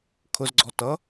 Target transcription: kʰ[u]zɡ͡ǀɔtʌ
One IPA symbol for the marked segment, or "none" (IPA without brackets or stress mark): ʊ